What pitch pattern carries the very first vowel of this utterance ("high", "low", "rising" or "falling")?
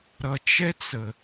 low